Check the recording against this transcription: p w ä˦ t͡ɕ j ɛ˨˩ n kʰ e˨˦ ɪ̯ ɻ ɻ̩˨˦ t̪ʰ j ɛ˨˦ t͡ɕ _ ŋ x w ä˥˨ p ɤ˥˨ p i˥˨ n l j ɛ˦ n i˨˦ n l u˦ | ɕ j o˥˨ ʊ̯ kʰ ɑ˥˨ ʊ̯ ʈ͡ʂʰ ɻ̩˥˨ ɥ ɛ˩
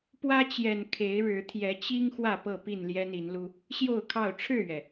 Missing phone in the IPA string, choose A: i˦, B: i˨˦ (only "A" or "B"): A